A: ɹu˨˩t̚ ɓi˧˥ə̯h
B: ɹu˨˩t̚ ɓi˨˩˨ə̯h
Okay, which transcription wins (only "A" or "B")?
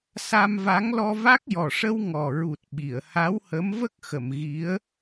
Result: B